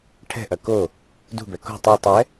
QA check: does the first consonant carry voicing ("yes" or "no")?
no